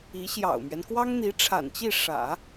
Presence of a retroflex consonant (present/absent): present